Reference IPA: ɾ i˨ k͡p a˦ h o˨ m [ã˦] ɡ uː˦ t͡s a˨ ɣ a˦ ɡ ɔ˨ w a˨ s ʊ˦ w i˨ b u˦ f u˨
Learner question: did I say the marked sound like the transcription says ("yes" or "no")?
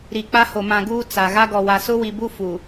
no